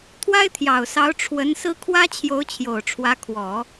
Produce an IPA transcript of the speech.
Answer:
t̪ʰ w a˥ ɪ̯ t̪ʰ j ɑ˨˩ ʊ̯ s ɑ˧˥ ʊ̯ ʈ͡ʂʰ w ə˧˥ n s ɹ̩˥ kʰ w ä˥ t͡ɕʰ j o˧˥ ʊ̯ t͡ɕʰ j o˨˩ ʊ̯ ʈ͡ʂʰ w ä˧˥ kʰ w ɔ˨˩˦

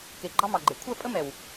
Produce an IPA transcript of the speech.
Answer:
k e˨ ɡ͡ǃ ɑ˦ m ɑ˨ ɡ͡ǃ e˨ kʷʰ ɛ˦˨ pʼ ə˦ m ɛ˨ w

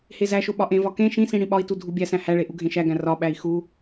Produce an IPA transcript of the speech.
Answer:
h e z æ ʃ o ɓ ɒ ʔ ẽ v ɒ k ẽ ʃ ĩ s ĩ ɽ ĩ ɓ ɒ i̯ t u dʱ u bʲ æ s æ̃ h æ ɭ e ʔ u ɡʱ ẽ ʃ æ ɡ æ̃ r ɒ ɓ æ i̯ x u

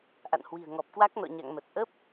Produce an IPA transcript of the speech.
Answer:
ʔ a̰˧˨ n h w i̤˨˩ ə̯ ŋ ɔ˨˩ p̚ k w a˦˥ k̚ n ɔ̰˧˨ ɲ a̰˧˨ ŋ m ə˨˩ t̚ ʔ ə˦˥ p̚

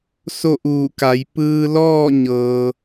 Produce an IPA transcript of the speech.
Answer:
s o˥˨ ʔ uː˧˩ k a˩˧ j p ɯː˧ l ɔː˥˨ ɲ ɤː˩

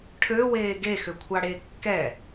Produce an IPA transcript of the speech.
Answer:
ʈʰ ø w eː ɡ e x ø kʷʰ ɑ ɽ e kː ɛ

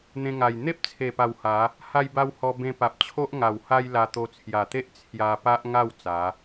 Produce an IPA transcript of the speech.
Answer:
n̪ ẽ˧ ŋ a˨˩ j n̪ e˦ p̚ t͡sʰ e˨˩ p a˨˩ w h a˨˦ | h a˧ j b a˧ w h ɔ˧ b ẽ˧ p a˨ p̚ t͡ɕʰ o˦ ʔ ŋ a˨˩ w h a˦ j l a˧ t̪ o˧ t͡sʰ j a˨˩ t̪ e˦ ʔ t͡sʰ j a˧ p a˦ ʔ ŋ a˥˧ w t͡s a˨˦

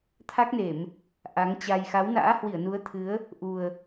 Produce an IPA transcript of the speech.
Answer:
t̪ʰ a˦˥ k̚ n e˧˩˨ m | ʔ a˨˦ ŋ t͡ɕ a˧ j x a˨˦ w n a̰ː˧˥ h w i˧˩ ə̯ n u˨˦ ə̯ t̪ʰ ɨ˨˦ ə̯ | ʔ u˨˩ ə̯

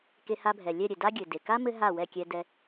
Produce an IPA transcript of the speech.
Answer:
k e˧ h a˧ bʱ ɛ˩ lʲ ɛ˥˩ ɾʲ ɘ˩ d a˥ ɡʲ ɘ˩ d e˩ k a˥ m ɘ˥ ɦ a˥˩ w ɛ˥˩ kʲ ɛ˧ d ɛ˧

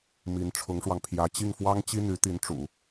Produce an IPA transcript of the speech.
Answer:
m i˧˥ n ʈ͡ʂʰ ʊ˧˥ ŋ ʂ w ɑ˧ ŋ pʰ j ä˧˥ t͡ɕ i˥˩ ŋ f w ɑ˥ ŋ t͡ɕ i˥ n̪ y˧˥ t̪ i˧˥ n ʈ͡ʂ ṵ˨˩˦

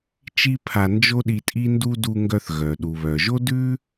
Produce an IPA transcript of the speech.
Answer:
t͡ʃ i˥ pʰ a˧ n d͡ʒ o˥ ɗ i˧ tʼ i˥ n d u˥ d u˧ ŋ ɡ œ˧ θ ɣ œ˩ ɗ u˩ β œ˩ ʒ o˥ d ʉ˥

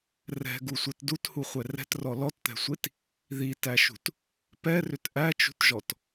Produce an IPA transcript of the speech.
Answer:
r ɛ̤ ɡ u sʷ ɛ t d u t h u χʷ ɛ r ɛ̤ t r ɔ l ɔ t t̪ ɛ̤ sʷ i t | ð i t æ ʃ ṳ t | p ɛ r ʏ t ʔ æ t͡ʃ ṳ t ʒ ɔ t

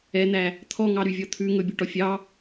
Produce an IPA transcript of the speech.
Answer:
ɛ n̪ æ | t̪ʰ ɔ ŋ ɑ ɾ y vʲ ɔ t̪ʰ ʉ ŋ ɵ bʲ o ʈ ɔ fʲ ɑ

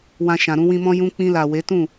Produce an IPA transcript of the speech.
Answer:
w ã˨ ʃ ã˨ ɾ ũ˧ w ĩ˧ m ɔ̃˦ j ũ˧ k͡p ĩ˧ l a˨ w e˨˦ t ũ˦˨

